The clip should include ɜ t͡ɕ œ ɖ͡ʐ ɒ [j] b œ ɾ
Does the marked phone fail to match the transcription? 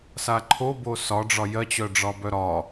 yes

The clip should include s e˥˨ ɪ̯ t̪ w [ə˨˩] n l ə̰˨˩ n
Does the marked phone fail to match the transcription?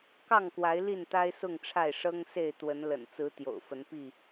yes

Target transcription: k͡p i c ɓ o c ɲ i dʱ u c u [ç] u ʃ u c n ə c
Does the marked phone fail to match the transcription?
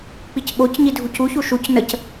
no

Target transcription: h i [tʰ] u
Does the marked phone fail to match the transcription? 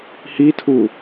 no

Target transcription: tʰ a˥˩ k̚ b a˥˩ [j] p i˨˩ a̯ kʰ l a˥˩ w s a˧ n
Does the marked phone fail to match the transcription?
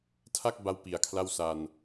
yes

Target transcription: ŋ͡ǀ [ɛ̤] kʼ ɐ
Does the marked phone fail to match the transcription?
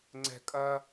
no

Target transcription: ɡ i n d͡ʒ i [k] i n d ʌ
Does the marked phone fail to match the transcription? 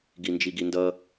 yes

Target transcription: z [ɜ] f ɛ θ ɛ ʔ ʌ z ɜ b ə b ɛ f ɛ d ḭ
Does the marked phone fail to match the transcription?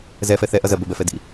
yes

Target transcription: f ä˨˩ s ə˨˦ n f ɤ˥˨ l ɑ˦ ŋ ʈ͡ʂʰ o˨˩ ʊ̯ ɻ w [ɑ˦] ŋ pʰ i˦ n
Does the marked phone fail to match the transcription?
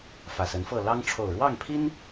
yes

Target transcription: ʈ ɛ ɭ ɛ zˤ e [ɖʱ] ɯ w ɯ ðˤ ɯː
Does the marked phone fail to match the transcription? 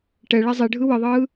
no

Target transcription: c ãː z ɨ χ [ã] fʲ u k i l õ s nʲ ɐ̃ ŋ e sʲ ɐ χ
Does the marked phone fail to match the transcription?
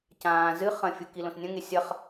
yes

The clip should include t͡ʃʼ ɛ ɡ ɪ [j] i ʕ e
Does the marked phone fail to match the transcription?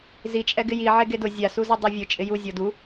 no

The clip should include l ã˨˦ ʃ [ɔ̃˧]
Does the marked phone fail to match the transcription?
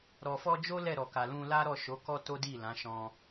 no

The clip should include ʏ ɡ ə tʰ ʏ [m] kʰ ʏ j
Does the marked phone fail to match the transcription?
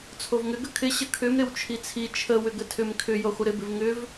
no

